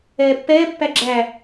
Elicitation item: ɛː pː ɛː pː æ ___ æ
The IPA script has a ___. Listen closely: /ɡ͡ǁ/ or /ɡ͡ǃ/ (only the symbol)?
ɡ͡ǁ